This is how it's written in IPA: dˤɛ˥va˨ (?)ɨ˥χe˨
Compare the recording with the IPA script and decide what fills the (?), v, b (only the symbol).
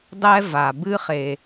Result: b